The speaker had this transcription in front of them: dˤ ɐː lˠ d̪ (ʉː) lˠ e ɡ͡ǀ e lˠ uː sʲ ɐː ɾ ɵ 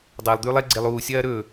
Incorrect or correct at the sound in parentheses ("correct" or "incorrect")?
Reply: correct